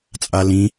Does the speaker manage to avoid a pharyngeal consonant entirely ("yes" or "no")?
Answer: yes